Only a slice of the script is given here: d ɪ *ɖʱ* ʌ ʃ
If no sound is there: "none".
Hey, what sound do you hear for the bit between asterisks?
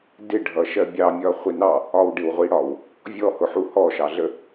ɖʱ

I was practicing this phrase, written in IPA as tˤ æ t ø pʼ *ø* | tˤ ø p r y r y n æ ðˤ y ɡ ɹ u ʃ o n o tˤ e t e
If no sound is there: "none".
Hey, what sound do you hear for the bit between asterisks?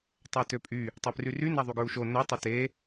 y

